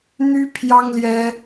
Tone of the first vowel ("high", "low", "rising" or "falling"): high